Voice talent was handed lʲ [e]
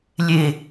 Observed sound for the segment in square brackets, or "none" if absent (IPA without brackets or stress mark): e